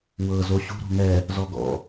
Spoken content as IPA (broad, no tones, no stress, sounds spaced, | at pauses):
w ɤ z o ɕ ṳ ɾ o̤ ŋ ɛ | z ɔ ɡ ɔ̰